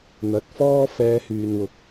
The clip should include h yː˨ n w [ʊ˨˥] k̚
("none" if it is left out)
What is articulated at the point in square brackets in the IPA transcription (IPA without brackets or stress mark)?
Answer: ʊ˨˥